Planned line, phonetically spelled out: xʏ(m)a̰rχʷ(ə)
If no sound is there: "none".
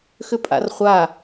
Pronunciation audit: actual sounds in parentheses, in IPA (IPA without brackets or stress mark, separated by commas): pʼ, a